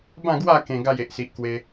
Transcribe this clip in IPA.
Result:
b ã˥˧ ɡ w a˥˧ k ẽ˧ ɡ a˥˧ j e˨ ʔ s i˨ ʔ k w e˧

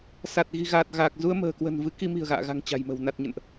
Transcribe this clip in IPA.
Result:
s a˨˩ t̚ ɣ i̤˨˩ ɣ aː˨˩ t̚ ɣ aː˨˩ k̚ z u˧ ə̯ m ə̤ː˨˩ k w ə̤˨˩ n v ɨ˨˦ k i˧ m i̤˨˩ ə̯ ɣ a̰ː˧˨ ɣ a̤˨˩ ŋ t͡ɕ a̤˨˩ j m ə̤˨˩ w n a˨˩ t̚ ɲ ə̰˧˨ n ʔ

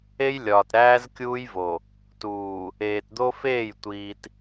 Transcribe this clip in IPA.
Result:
e˦ j lʲ ɒː˨ t ɾ æː˦ z kʲ uː˦ j v o˨ | t uː˨ | eː˨ t d̪ o˦ f eː˦˨ j tʷ iː˨ t

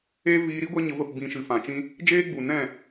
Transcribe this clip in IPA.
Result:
e˦ v iː˧ ɾ i˦ ɡʷ ɛ˦ ɲ ə˧ v ə˦˨ p b ĩ˧ ʃ ɨ˨ f ã˨ t͡ʃ ĩ˦ | d͡ʒ eː˦ ɡ͡b u˨ n ɛ̃˦˨

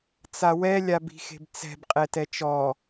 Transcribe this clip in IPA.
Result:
t͡s a w ɛ lʲ a b i̤ x e̤ b t͡s ɛ̤ b qʼ ɛ t ɛ t͡ʃ ɔ

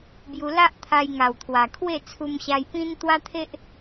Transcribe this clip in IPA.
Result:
b j u˧ l a˦ ʔ t̪ʰ a˧ j ŋ a˨˩ w t̪ʰ w a˨˩ kʰ w e˥˧ t͡sʰ u˧ m ɕ a˧ j p ĩ˦ n t̪ w a˦ t̪ʰ e˦ ʔ

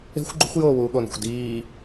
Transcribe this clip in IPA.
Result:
e̤ xʷ ɡ͡ǃ ṳ xʷ j oː w uː ɠ o n ṳ xʷ d iː

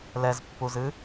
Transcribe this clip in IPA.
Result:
l ɛ z pː u z ɨ

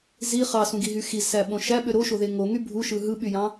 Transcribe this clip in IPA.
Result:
z i χ ɑ s ũ ɡ i ɦ y x i z s æ ɓ õ ʃ æ ɓ ø ɾ o ʃ o ð e ŋ o ŋ y bʱ u ʃ ɯ ɦ ɯ ɓ y j ɑ̃

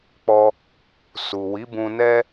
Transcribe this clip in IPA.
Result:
k͡p ɔ˧ | s u˨ w i˨˦ b ũ˧ n ɛ˦

